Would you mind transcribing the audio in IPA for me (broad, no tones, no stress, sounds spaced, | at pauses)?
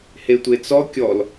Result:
h e tʷ e t͡s ɔ kʲ ɔ l